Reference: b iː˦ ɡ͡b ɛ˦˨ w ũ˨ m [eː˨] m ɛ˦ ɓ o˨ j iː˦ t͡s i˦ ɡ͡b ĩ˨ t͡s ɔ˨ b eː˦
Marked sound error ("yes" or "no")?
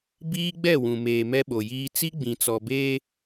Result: no